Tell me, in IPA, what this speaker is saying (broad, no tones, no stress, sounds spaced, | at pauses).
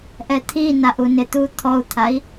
ʔ ɛ t̪ʰ i n a ʔ u n ɪ t̪ u t̪ʰ ɔ u̯ t̪ʰ a i̯